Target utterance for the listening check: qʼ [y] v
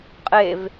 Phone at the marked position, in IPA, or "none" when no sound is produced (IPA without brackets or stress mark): e